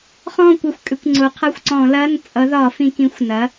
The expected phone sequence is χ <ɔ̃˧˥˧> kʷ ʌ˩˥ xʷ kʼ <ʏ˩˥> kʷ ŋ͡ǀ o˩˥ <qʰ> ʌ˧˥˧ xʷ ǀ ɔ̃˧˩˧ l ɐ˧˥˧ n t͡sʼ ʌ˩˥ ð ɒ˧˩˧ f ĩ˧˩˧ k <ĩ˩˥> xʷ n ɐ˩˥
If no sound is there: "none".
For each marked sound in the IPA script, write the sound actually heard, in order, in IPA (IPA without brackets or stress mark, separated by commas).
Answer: ɔ̃˥˩, ʏ˩˥, qʰ, ĩ˩˥